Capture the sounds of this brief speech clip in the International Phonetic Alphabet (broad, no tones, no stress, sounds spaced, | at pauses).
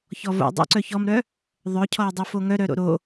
ç ɔ v o̰ dˤ ṵ ǀ œ ç ɔ m ɾ œ | ðˤ œ cʰ ɔ ə̯ dˤ u f o ŋ œ ɾ œ ɾ o̰ ɾ o